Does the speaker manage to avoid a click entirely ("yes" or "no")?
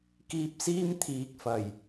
yes